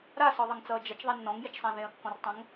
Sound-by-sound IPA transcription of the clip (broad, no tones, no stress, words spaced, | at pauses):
ɾasɔðˤʌŋt͡sʌː d͡ʒɐt͡ʃðˤɛ nːɔ̃ŋjet͡ʃsˤã ðẽɐ̯kːɔ̃rtˤɐ̃ŋ